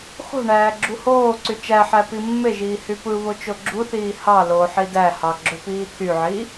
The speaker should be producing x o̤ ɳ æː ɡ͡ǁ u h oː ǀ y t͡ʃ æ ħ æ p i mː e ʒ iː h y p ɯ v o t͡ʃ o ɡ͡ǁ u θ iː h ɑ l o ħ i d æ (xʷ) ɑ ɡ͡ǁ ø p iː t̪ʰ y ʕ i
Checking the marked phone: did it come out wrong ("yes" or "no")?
yes